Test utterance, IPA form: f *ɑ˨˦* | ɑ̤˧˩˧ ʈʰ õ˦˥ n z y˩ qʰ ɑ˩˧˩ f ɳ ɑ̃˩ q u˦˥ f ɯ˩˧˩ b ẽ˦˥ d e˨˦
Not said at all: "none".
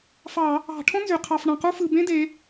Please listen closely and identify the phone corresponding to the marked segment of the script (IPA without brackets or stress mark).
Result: ɑ˧˩˧